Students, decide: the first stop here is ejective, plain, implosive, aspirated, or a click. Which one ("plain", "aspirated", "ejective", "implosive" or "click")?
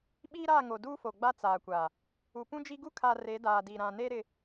implosive